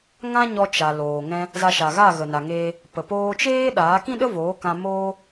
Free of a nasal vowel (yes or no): no